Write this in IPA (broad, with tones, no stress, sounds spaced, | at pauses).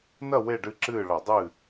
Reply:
n ɐ˥˨ w e˥˨ ɖ ɨ˥˨ ǁ ɨː˥˨ ɭ ɐ˧˩˧ dˤ ɨː˥˨